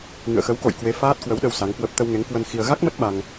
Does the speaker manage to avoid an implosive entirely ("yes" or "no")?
no